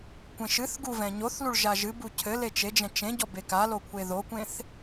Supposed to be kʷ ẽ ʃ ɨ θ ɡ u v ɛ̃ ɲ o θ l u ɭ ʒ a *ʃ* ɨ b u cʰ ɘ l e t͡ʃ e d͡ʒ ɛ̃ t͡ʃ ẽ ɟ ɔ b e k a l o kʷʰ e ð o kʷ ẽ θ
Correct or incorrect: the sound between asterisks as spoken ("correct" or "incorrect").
incorrect